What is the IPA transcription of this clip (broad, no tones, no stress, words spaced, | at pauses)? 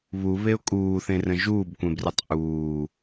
βuβeʊ̯ kʼuːθẽrə̃ ʒuːbkʷẽbrɯtˤ ʔuː